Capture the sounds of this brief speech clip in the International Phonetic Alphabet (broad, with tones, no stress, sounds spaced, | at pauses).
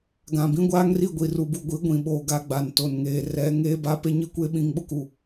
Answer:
ɡ ã˨ b ĩ˦ ɡʷ aː˦ ŋ r i˦˨ ɡʷ i˨ r u˨ b u˨ ɡʷ i˨˦ ɡʷ ĩ˨ ɓ oː˨ ɡ a˦ ɡ͡b a˨ n t o˨ n ŋ eː˨ r ɛ˨˦ ŋ eː˦ b a˦ p e˦ ɲ i˦ kʷ eː˦ ɓ ĩ˦˨ ŋ ɓ ʊ˦ k u˨